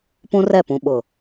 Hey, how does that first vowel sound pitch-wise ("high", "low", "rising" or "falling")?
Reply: high